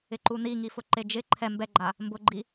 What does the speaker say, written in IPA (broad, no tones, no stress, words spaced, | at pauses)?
ɪǃuniŋi fʊǃed͡ʒɪ ǃʰɛ mbɛɡ͡ǃa | mbʊɡ͡ǃi